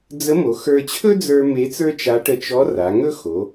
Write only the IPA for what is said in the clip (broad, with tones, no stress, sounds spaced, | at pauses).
d͡z ə˧˥ m o˩˧ x ə˞˧ t͡ɕʰ ɵ˥ d͡z ə˞˧ m e˧˥ t͡s ə˞˥ t͡ʃ a˧˥ ʈ ə˧ t͡ʃ ɔ˧˥ r a˩˧ ŋ ɵ˥ x o˩˧